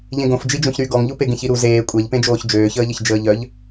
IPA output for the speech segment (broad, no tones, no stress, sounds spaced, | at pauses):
ʎ ẽ ɡ õ f d͡ʒ i d͡ʒ õ ç ɾ y ɡ ɔ ŋ ʎ u p e ɡ ẽ ç i ɾ u z eː kʷʼ ɛ ʎ p ẽ d͡ʒ oː ç d͡ʒ øː ç əː ʎ ə ç d͡ʒ əː ʎ œ ʎ